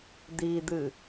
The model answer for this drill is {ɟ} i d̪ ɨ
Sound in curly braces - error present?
yes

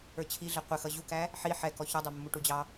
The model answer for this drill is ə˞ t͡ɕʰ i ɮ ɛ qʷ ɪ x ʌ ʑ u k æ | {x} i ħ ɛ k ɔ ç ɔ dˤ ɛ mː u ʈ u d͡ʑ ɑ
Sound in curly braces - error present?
yes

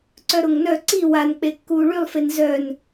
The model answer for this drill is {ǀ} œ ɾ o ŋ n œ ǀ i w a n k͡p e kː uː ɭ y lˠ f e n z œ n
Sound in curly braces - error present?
no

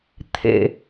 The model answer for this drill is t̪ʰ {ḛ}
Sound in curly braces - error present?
no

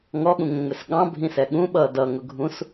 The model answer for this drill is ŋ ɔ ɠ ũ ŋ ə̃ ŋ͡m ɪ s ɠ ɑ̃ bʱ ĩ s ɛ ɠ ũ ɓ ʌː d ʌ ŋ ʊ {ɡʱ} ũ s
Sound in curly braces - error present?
no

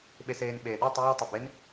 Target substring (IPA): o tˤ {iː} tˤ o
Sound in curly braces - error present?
no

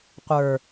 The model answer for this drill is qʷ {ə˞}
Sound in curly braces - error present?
no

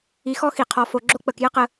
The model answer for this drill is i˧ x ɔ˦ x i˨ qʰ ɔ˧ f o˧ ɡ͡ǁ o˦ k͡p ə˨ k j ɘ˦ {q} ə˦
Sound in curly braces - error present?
no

